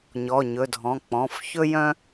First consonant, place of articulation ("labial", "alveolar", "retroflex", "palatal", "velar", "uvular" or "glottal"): palatal